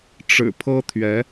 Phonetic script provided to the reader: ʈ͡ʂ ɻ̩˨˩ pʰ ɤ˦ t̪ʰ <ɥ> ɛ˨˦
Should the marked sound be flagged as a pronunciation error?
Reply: no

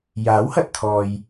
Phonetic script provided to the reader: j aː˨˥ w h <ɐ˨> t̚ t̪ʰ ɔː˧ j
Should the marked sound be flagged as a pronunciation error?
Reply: no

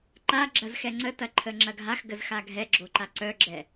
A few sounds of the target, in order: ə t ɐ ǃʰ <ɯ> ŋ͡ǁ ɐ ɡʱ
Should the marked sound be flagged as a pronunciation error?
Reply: yes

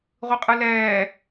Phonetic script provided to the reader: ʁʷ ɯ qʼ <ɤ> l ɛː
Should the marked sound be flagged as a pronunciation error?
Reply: yes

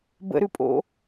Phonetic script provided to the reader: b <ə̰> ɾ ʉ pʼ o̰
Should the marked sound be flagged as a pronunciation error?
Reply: no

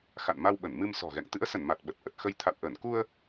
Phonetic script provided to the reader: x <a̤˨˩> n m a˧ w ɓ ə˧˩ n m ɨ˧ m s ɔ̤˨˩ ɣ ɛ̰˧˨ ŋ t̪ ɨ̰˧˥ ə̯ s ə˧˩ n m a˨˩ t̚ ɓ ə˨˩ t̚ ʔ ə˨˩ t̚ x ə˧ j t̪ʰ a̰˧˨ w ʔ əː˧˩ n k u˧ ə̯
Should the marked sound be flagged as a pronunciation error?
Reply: yes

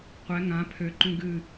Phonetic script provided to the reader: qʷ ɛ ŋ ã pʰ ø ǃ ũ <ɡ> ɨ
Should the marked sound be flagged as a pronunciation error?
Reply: no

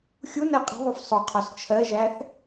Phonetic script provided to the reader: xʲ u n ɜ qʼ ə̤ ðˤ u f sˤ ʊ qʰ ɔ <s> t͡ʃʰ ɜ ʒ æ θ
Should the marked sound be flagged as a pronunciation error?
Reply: no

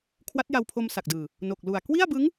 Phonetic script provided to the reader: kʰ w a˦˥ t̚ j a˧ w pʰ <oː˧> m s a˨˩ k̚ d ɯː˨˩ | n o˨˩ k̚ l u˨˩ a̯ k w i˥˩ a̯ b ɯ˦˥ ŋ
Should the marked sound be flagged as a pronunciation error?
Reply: yes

